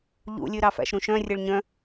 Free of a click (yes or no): yes